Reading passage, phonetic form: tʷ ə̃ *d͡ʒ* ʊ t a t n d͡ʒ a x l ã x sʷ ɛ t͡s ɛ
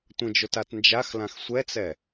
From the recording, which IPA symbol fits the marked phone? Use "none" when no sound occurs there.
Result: d͡ʒ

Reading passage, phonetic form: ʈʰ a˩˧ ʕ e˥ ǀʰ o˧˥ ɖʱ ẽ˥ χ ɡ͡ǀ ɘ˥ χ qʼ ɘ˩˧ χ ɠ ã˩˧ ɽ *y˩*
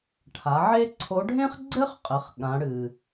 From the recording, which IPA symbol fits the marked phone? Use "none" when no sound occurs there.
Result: ɨ˩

